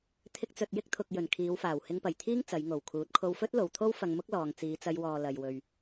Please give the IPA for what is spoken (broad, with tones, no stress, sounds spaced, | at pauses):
t̪ʰ ɪ˧ k̚ t͡s ɵ˨ t̚ j ɪ˥ k̚ t̪ʰ ʊ˨ k̚ j ɵ˨˩ n kʰ iː˨˧ w f aː˨˩ w h ɪ˧ ŋ p ɐ˨˩ j t̪ʰ iː˥ ŋ t͡s ɐ˨˧ j ŋ o˨˩ w kʰ uː˨˥ t̚ kʰ o˧ w f ɵ˥ t̚ l o˨ w t̪ʰ o˥ w f ɐ˧ ŋ m ʊ˥ k̚ l ɔː˨ ŋ t͡s iː˨˧ t͡s ɐ˧ j w ɔː˨ l ɐ˨ j w ɵ˨ ɥ